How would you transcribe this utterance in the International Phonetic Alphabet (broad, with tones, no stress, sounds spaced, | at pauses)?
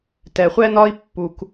t ɛ˨ χʷ ɛ˦ n ɒ˦ i̯ pː u˦ k